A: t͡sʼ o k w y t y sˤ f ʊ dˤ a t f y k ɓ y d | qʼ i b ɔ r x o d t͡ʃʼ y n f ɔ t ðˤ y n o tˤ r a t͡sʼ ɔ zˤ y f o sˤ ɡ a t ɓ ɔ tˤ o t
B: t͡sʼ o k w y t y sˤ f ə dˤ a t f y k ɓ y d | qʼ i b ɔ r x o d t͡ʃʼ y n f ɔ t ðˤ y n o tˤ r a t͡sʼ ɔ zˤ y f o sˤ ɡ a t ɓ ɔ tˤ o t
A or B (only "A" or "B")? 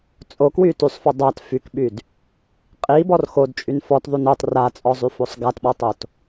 A